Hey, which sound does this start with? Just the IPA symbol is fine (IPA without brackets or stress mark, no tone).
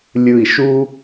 lʲ